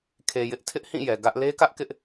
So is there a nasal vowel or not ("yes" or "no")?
yes